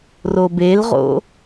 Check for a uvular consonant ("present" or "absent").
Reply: present